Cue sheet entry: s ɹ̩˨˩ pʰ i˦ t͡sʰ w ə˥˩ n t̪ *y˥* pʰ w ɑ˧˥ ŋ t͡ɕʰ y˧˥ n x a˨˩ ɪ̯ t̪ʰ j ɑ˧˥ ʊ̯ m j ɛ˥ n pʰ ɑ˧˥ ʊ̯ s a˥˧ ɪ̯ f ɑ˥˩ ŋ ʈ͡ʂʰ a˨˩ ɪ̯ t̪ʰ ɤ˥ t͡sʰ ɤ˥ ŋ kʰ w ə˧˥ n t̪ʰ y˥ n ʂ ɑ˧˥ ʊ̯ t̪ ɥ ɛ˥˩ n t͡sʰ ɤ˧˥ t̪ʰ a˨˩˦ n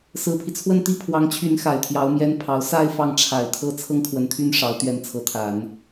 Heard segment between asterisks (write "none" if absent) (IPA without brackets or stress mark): i˥